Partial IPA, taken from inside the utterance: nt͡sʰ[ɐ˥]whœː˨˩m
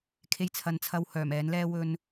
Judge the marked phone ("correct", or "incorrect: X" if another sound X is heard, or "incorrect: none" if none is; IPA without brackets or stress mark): incorrect: ɐ˧